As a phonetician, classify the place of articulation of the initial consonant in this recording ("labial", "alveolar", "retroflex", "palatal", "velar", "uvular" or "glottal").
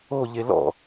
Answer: palatal